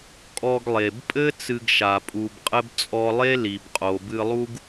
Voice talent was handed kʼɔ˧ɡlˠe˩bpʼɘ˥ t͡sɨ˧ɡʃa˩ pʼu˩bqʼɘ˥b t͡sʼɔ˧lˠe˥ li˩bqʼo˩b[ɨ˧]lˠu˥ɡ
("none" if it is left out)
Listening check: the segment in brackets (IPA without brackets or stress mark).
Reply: ɨ˧